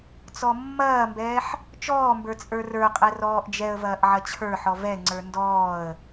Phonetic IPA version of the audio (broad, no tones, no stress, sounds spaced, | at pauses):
t͡s ɔ mː ɐː m b ɛː ħ | t͡ʃ ɔː m b ə˞ t͡sʼ ə˞ r ə˞ qʼ ɛ r ɔː ʔ d͡ʒ ɛ ə̯ v ɐː ʔ ʕ ɐ t͡ɕʰ ə˞ ħ ɔ v ɛ ŋ͡ǀ ə˞ n d ɔː ə̯